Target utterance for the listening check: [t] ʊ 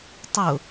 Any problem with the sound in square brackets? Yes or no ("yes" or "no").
yes